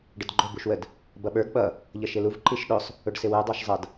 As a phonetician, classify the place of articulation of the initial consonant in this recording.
retroflex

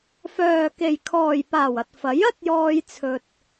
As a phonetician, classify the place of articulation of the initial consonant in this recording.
labial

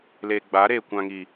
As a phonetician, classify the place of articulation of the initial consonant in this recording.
alveolar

